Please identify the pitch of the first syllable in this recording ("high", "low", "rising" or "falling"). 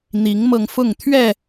rising